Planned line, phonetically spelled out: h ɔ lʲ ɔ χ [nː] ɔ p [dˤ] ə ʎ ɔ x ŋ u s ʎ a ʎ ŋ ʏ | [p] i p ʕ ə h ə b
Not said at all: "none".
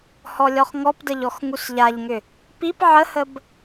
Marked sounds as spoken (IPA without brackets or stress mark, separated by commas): ŋ, d, p